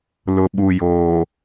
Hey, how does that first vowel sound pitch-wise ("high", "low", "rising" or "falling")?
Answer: low